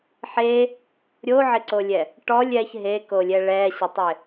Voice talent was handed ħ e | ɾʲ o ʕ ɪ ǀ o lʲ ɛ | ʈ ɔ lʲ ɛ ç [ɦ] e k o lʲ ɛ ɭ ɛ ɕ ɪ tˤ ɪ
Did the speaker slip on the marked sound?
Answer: no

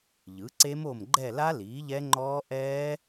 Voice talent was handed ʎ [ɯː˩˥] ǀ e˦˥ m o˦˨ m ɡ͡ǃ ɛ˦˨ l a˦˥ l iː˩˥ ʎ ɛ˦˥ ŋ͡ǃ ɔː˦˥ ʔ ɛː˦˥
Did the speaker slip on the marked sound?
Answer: yes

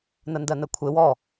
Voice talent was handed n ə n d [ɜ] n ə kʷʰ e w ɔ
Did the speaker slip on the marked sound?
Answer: no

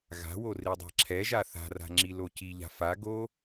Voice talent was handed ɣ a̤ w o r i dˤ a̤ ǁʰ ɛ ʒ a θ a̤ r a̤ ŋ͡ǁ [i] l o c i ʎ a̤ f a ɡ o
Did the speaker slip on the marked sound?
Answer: no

